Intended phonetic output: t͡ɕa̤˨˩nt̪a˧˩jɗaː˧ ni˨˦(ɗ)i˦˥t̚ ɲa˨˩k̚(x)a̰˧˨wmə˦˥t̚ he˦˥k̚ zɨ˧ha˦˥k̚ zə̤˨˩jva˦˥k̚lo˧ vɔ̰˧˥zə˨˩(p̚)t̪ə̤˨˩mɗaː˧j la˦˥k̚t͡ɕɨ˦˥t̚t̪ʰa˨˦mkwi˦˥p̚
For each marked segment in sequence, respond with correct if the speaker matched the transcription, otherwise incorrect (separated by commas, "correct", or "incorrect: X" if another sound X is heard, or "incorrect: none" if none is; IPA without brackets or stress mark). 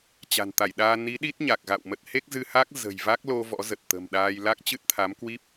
correct, incorrect: ɣ, incorrect: t̚